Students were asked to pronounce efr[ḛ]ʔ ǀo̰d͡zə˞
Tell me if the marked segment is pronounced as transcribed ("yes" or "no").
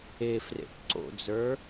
yes